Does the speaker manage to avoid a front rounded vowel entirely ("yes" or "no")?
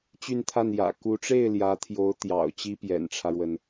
no